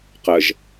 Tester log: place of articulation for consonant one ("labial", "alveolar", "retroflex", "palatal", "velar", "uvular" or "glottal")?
uvular